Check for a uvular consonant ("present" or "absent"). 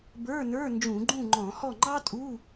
absent